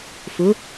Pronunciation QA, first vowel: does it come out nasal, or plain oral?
oral